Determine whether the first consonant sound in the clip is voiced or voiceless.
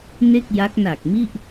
voiced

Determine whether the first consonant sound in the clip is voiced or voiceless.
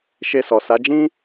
voiceless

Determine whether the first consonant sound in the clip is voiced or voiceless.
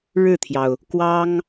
voiced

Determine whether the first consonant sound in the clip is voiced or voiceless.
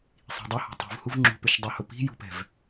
voiceless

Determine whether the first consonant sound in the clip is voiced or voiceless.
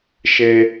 voiceless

